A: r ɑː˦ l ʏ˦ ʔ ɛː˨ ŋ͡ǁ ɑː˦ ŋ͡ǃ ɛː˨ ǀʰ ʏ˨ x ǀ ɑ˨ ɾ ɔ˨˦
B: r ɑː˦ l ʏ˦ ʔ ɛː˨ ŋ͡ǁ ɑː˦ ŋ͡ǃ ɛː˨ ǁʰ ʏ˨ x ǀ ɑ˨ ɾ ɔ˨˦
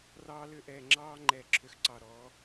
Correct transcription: B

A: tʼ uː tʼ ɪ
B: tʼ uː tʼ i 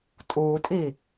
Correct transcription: B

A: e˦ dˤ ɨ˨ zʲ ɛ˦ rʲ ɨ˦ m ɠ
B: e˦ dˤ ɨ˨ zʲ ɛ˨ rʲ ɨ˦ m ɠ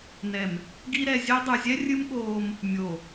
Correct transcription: A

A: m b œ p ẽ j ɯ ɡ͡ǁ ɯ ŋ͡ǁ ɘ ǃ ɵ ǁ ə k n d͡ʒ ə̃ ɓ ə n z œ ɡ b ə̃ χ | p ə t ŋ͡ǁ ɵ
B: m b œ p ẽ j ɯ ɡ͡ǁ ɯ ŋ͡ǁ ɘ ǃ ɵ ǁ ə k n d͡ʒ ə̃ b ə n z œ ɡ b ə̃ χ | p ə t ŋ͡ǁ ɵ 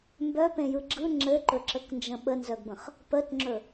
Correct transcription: A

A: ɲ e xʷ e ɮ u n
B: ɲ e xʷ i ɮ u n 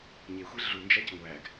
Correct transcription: A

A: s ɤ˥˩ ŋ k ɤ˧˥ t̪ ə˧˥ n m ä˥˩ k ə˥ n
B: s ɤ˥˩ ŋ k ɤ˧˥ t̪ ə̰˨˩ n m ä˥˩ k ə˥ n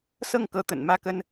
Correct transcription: B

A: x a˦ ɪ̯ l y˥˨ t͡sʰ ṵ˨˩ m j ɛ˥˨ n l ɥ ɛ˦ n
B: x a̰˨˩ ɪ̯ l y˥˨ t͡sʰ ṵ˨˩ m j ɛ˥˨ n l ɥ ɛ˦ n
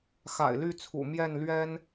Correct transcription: B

